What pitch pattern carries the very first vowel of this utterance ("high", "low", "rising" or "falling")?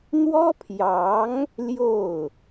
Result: high